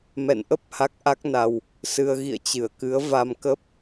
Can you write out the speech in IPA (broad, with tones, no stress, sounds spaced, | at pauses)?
m ɛ̰˧˨ n ʔ ə˦˥ p̚ h a˦˥ k̚ ʔ a˦˥ k̚ n a˧ w | s ɨ˧ ə̯ ɣ ḭ˧˨ ə̯ t͡ɕ ɨ˧˩ ə̯ k ɨ˨˦ ə̯ v a˧ m k ə˦˥ p̚